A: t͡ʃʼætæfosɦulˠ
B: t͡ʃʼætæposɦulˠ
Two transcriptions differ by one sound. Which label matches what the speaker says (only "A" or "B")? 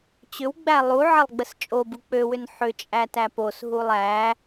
B